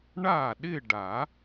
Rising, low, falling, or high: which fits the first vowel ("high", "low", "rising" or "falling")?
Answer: falling